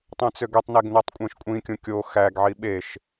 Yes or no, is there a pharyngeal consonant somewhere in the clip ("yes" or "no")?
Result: yes